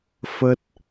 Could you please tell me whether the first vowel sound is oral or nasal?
oral